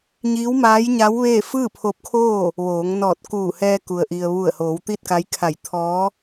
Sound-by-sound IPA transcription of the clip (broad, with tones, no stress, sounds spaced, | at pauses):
ɲ iː˧˥ w m aː˧˥ j ɲ a˧˥ w ʋ eː˥˨ f ɯː˥˨ pʰ o˧ p̚ kʰ oː˥˨ | ʋ oː˩˧ ŋ n ɔː˧˩ t̚ k uː˧˩ h ɛː˧ k u˩ ə̯ ʔ i˩ ə̯ ʋ u˧˩ ə̯ h oː˩˧ w t̪ i˥˨ t̚ k a˧˥ j kʰ a˧˩ j t̪ʰ ɔː˧˥